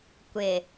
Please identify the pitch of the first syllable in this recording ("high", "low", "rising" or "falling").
low